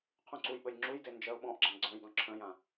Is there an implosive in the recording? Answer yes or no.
yes